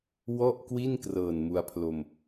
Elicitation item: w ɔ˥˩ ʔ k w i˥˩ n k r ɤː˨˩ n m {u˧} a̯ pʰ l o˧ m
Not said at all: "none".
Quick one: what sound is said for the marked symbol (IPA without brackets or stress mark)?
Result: u˧